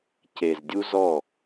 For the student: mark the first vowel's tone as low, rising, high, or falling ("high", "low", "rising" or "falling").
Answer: low